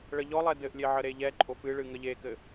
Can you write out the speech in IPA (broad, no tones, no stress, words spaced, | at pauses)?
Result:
ɭəʎɔlˠɛ dɘʔlʲe ʕəɾeʎɛǃʼof ɨɭɨ ŋəʎekɘ